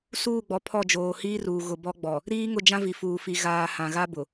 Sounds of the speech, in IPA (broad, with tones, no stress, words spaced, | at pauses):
suː˦˨ɡ͡bɔ˨ pʰɔ˦˨d͡ʒoː˨hiː˦ruː˨ ɣʊ˨ bɔ˦ɡ͡bɔ˨ | ɾiː˦ŋʊ˦˨d͡ʒã˦vi˨ fuː˨fi˨ ɣaː˨ hã˨ɣa˦bʊ˨